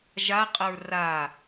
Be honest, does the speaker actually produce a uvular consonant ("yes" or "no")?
yes